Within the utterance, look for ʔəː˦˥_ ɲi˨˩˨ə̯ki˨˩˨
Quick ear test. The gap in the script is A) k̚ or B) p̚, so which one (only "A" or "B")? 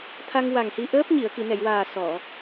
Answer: B